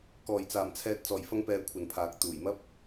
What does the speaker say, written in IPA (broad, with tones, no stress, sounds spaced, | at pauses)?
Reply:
k ɔː˨˩ j t͡s aː˨˩ m t͡sʰ ɛː˨ t̚ t͡s ɔː˨˩ j f ɐ˧ ŋ p ɛː˨ kʷʰ ɐ˨ n pʰ aː˨ k̚ t̪ uː˨˩ j m ɐ˥ p̚